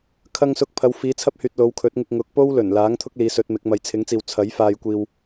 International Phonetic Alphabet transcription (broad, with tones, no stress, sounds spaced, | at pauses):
kʰ ɐ˧ ŋ s ʊ˧ k̚ pʰ ɐ˨˧ w f iː˨˥ t͡sʰ ɐ˥ p̚ h yː˨ t̚ l o˨˧ w kʰ ɵ˨˥ t̚ ŋ ɪ˧ k̚ ŋ ʊ˨˥ k̚ p o˥ w l ɵ˨˩ n l aː˨˥ ŋ t̪ʰ ʊ˥ k̚ l iː˨˥ s ɵ˨˥ t̚ m ɪ˨˥ k̚ m ɐ˧ j t͡sʰ ɪ˨˥ ŋ t͡s iː˨ w t͡sʰ ɐ˨˥ j f aː˧ j kʷ iː˧ w